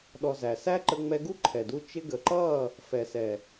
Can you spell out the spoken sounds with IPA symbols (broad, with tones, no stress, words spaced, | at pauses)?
ɗɔ˧zæ˨ sæ˦ ǃə˧ŋ͡mɛ˧ɡu˦ ǃʰɛ˨du˧ t͡ʃɪ˧ɡə˨ǃʌ˦˨ | fɛ˨sɛ˨